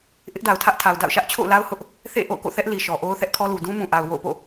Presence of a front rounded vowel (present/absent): absent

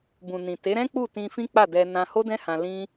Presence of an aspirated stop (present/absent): absent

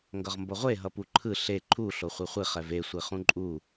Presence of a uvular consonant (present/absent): present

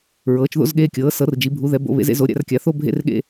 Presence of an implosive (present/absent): present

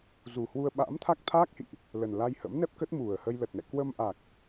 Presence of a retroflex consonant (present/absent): absent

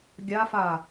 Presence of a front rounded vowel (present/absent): absent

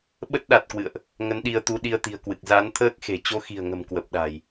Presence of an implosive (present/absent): present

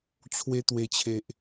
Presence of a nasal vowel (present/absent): absent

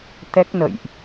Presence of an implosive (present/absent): absent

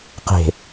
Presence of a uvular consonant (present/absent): present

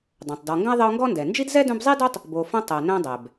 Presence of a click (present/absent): absent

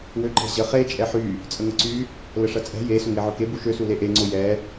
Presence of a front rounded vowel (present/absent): present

